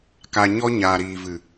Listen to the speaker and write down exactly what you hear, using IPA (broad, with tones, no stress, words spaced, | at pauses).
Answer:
ka˧ɲɔ˦ ɲaː˨ɾiː˨vɨ˨